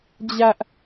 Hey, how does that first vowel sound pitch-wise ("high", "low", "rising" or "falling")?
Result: high